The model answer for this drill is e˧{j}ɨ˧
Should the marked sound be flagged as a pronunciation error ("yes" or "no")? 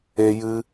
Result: no